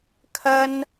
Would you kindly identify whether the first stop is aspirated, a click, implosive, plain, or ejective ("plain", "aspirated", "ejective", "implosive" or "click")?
aspirated